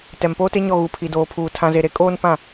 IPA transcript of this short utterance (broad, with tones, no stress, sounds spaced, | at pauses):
t ɛ˨ m p oː˦ t e˦ ɲ ɔ˦˨ ɣ u˨ pʰ i˨ d oː˨ pʰ uː˨ tʰ ã˨ z e˨ ɾ e˨ kʼ oː˦ n p ã˦˨